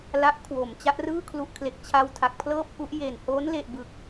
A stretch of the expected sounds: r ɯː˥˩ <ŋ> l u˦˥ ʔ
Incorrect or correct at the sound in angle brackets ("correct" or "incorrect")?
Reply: incorrect